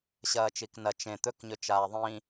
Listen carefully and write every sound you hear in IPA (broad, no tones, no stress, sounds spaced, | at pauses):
ɕ ɐː t͡ʃ i k n ɐ t͡ʃ ẽ t̪ ɵ k ɲ ɵ t͡ʃ aː ðˤ ĩ